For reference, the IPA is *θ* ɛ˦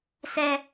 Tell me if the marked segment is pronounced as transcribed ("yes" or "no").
no